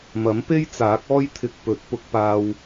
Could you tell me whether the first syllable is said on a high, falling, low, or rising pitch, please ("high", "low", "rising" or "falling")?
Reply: rising